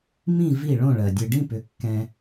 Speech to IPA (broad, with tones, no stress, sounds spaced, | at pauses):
m ĩ˥˧ v i˥˧ ɭ õ˥˧ ɭ ɜ˨ dʲ ɨ˨ ɖ ĩ˥˧ p ʏ˩˥ kː ɛ̃˨